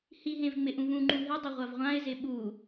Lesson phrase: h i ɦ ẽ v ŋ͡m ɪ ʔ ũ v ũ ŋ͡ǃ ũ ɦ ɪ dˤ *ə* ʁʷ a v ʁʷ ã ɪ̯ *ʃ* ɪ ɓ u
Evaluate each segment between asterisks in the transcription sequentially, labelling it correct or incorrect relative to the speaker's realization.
incorrect, incorrect

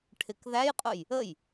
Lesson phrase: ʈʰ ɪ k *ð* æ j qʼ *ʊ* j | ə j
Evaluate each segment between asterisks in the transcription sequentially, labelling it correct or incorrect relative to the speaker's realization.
correct, correct

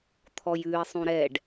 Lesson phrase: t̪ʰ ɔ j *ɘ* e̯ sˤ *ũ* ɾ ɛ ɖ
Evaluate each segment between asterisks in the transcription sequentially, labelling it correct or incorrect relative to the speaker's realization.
incorrect, correct

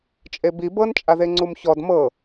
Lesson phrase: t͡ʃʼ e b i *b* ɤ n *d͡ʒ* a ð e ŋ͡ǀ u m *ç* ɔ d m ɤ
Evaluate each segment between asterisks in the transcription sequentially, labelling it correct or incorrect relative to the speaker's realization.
correct, incorrect, correct

